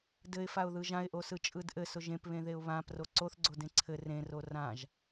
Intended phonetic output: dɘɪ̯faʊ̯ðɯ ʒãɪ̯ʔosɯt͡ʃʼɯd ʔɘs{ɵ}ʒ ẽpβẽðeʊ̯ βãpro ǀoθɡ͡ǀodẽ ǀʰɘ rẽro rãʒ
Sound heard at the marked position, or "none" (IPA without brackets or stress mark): ʊ